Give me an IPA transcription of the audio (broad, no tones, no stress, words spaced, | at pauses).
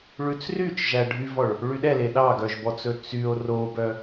ɭʉt͡sryt͡ʃ ʒæɖʱyvɔɭ | ɭyɗɛle ɗɑɡœʒbɔt͡sɵ t͡syo̯ robœ